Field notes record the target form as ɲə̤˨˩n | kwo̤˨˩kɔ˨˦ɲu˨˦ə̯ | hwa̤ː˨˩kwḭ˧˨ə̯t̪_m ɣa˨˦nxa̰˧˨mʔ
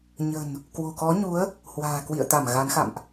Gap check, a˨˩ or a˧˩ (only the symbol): a˧˩